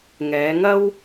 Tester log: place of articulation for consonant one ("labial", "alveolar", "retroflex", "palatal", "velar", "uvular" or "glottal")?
velar